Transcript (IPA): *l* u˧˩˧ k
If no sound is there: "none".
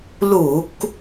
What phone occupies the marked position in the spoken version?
l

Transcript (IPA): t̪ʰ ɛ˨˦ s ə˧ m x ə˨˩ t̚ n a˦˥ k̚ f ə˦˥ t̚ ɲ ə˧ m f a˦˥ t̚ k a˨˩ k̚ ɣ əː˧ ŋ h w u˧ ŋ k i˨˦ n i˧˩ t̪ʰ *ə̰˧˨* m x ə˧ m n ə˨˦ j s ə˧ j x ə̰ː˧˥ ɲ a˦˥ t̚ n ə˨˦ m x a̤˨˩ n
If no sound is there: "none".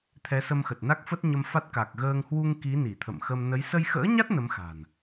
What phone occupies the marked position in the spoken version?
ə̰˧˨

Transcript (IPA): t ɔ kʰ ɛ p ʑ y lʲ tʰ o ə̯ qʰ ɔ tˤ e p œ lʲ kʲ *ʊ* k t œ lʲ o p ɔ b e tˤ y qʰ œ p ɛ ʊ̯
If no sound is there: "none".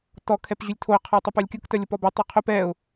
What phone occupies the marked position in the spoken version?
ʊ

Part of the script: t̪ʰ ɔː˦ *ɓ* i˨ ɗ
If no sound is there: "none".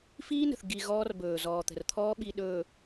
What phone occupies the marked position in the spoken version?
ɓ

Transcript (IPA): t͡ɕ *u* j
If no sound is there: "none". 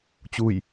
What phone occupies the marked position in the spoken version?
u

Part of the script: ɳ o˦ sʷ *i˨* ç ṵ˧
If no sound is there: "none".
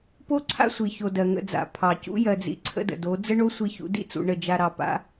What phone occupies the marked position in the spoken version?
i˧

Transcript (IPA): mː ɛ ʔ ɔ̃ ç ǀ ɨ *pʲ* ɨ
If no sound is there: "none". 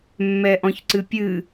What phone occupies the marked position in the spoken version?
pʲ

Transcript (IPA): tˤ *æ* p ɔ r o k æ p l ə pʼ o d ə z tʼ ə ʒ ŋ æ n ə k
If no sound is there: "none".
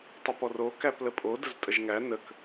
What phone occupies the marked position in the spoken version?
ə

